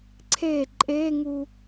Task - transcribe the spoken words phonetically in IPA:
ǀʰe ǃʼeŋu

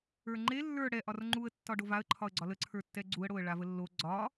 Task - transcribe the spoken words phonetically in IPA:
ə˞ŋ͡ǃe lːə˞ ɽɛ ʔɒrŋ͡ǃuə̯ tːɒɖovaə̯ ǃʰɒə̯ɡ͡ǀɒlə ǀʰə˞tːɛɡ͡ǀuə̯ ɽoə̯ɭavəlːo ɡ͡ǀɒ

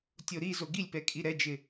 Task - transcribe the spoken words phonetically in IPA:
tʲoɾizo ɡilʲpɛ kʼiɾɛd͡ʒɪ

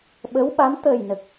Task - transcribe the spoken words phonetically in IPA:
ɓə˧˥wɓa˧˥m t̪əː˨˩jnə˨˩k̚

